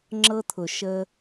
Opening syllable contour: high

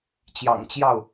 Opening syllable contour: low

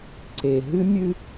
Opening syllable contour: low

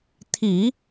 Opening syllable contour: low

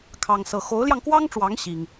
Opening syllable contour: high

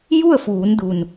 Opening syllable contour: falling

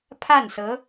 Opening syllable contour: falling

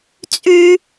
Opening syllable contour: high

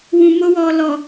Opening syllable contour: low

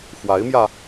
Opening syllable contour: rising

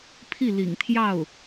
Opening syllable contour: falling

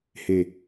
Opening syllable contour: low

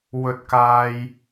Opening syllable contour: high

